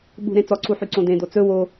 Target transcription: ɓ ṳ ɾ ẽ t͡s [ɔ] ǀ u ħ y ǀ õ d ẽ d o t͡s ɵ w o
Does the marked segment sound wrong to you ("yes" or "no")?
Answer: no